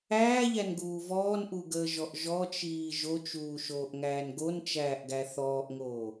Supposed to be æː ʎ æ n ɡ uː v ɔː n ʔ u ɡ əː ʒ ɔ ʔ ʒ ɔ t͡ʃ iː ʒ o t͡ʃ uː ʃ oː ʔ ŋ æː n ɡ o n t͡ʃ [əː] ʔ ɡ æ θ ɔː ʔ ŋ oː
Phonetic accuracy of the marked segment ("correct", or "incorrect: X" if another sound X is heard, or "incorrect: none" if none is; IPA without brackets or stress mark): incorrect: æː